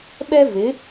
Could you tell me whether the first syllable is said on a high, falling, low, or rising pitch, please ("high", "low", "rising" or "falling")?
high